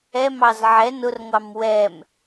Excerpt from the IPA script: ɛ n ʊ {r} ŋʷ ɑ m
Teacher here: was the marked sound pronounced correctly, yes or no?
yes